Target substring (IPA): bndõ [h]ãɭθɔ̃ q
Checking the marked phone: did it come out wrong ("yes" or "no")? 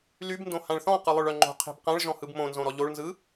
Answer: no